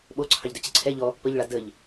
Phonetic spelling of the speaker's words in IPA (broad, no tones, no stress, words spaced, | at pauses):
ɓoǀʰɑʎdœ t͡ɕəǀʰɛ ʎɔ | pəʎɭa dəʎ